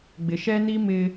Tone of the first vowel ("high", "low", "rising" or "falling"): low